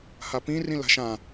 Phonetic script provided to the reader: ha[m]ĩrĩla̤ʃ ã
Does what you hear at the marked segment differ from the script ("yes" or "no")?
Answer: yes